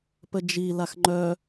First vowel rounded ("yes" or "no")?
no